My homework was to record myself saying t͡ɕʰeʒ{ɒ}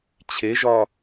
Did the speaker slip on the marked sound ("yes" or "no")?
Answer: no